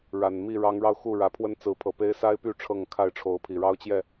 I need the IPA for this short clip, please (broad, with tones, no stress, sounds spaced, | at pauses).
ɻ a˨˩ n m i˥˨ ɻ ɑ˨˦ ŋ ɻ ɑ˧ ʊ̯ x u˥˨ ɻ ä˨˦ pʰ w ə˦ n t͡s ɹ̩˨˦ pʰ ɤ˨˩ p e˦ ɪ̯ s a˦ ɪ̯ p y˥˨ ʈ͡ʂʰ ɤ˥˨ ŋ kʰ a˥˨ ɪ̯ ʈ͡ʂʰ o˨˦ ʊ̯ pʰ i˨˩ ɻ ɑ˦ ʊ̯ t͡ɕ j ɛ˥˨